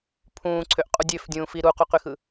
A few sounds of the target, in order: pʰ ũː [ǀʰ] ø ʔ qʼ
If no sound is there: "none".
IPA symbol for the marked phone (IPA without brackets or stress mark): ǀʰ